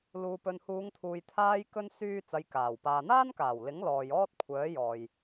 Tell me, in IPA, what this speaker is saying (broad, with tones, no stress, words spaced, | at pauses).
luː˨pɵ˨nhuː˨˧ŋt̪ʰuː˨j t̪ʰaː˧jkɵ˧n syː˥t͡sɐ˧jkaː˨˩w paː˨n̪aː˥nkaː˨˩wlɪ˨˥ŋ lɔː˨j ɔː˥t̚kʷʰœː˨˥jɔː˨j